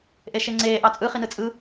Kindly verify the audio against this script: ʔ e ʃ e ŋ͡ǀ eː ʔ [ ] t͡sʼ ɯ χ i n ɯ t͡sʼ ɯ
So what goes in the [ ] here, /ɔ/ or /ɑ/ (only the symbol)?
ɑ